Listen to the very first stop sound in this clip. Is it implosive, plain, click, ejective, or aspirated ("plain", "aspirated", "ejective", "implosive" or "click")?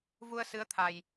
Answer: aspirated